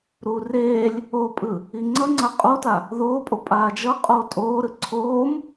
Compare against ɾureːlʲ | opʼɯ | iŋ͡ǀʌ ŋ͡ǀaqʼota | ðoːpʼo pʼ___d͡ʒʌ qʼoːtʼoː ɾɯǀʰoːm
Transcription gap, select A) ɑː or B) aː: B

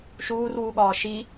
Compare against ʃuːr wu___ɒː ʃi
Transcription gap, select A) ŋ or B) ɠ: B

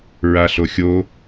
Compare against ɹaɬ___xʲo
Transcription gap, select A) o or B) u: A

